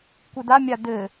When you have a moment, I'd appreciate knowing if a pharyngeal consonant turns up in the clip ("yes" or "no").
no